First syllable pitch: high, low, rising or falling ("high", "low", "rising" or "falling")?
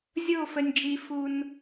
falling